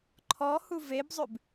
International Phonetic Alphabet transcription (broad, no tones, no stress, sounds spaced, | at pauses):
ǃʰ ɔ h u v e b zˤ ʉ b